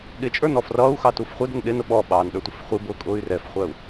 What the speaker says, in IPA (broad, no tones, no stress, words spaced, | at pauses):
ɠɪt͡ʃʼə˞n ɔfrʌːu̯xɑ tufχʷɛdən ɗɪnʊ ɓɔɓɑːn ɗə˞tʷɪfχʷibʊː kʼʊːy̯rɛfχʷæu̯